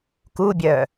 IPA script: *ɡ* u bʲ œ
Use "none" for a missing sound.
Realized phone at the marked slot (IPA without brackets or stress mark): k